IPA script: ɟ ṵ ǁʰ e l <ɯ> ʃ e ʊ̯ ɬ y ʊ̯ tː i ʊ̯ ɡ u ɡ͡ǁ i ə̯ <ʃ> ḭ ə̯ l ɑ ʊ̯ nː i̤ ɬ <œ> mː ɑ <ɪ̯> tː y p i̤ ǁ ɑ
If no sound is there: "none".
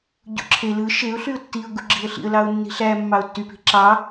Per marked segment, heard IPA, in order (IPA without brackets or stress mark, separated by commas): ɯ, ɬ, æ, ʊ̯